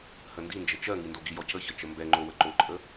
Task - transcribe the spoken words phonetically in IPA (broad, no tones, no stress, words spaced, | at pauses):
həndind͡ʒə t͡ʃɜ ŋindoɡijɔ cəçə t͡ʃəmbɛŋ͡ǃo wəǃoǃʼə